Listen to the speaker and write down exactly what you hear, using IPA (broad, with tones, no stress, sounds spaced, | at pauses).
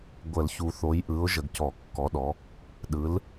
ɡʷ ə˨˩˦ l ç u˨ θ o˨˦ j ʔ ɯ˨˦ ʊ̯ ʒ ə˨ ɡ c ɔ˨˩˦ kː ɔ˨˦ ɗ ɔ˨˦ | ɗ ɯ˨˦ l